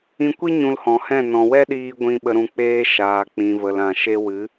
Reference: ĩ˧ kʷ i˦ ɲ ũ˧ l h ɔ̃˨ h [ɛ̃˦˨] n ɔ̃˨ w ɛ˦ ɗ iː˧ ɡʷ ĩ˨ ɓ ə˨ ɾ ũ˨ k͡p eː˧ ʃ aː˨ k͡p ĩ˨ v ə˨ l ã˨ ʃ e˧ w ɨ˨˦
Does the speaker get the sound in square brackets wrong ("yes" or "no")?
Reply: no